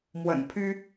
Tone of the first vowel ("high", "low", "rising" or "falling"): low